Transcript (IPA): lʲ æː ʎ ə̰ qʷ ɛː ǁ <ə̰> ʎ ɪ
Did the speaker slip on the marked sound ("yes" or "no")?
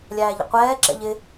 yes